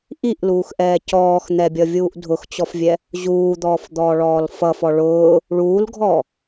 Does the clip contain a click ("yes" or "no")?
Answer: no